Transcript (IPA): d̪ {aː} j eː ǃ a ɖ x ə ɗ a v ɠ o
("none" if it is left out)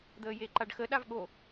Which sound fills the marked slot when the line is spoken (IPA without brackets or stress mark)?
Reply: əː